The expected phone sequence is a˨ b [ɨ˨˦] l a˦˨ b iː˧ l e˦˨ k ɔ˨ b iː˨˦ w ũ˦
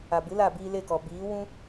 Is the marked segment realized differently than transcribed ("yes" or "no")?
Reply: no